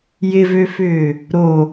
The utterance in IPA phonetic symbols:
jɪvøfʏː | ɾo

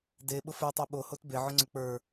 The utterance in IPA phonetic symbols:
deɓʊ fə˞tˤo ɓohot beʕʊŋ͡ǀʊ k͡pə˞

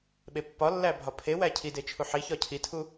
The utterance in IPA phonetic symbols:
ɓepːɒlːæ bʱɒpʰewæ cʰide t͡ʃʰuħiçɒ cʰitʰu

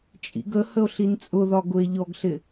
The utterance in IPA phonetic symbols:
t͡ʃʼḭɡəhəo̯ ɬint͡sʼʊðɒ ɡʊe̯ʎɔɡɬɪ

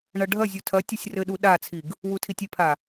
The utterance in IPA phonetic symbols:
ɳɐɖʱɐzʲu tʰɐ tʲɐsʲrɘɗu ɗat͡sʰiɡ | wutʰitʲipʰa

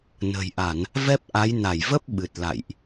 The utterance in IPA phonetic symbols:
nə̤˨˩jʔa˧˩˨n | vɛ˦˥p̚ʔa˨˦j na˧˩jvə˦˥p̚ ɓɨ˨˩t̚ la̰˧˨jʔ

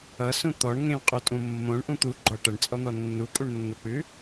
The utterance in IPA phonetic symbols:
ʌsũ t̪ɔɳŋẽw qʼutʼũmːõɳ ʔũt̪u ɡ͡ǃɔʈʌɳt͡sʼɔn̪ɔ nːukʼuɳnːok͡pʉ

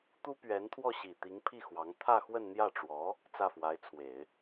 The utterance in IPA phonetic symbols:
t̪u˥pɥɛ˧˥n t̪ʰwɔ˥˩ɕi˨˩t̪i˧˥ŋpʰi˥˩ xwɑ˧˥ŋ t̪ʰä˥˧xwə˥˧nn̪jä˥˩ʈ͡ʂwɔ˧˥ | t͡sä˥˩fwa˧˥ɪ̯t͡sʰwe˨˩˦ɪ̯

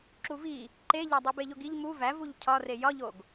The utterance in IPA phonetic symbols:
ǁuvi | ǃeʎæ dˤibeʎoɡiʎ mu væ vuʎcʰɒre jɒʎoɡ

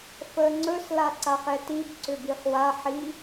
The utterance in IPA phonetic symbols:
fəːŋ͡ǀɵs laǀaχɛtib ǀʏbiχwa ħi

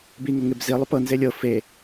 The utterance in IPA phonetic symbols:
biŋoŋeb zilˠup ɤnze lʲɤ fe

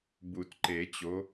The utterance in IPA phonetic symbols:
bu˨˩˦tǃe˨˩˦t͡ɕo˨˥

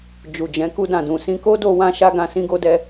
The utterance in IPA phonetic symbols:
d͡ʒu˨d͡ʒɛ̃˨˦ ku˧dã˨dũ˨ sĩ˧ko˦do˧wã˧ ʃa˦ɡã˧ sĩ˦ɡo˦dɛ˦

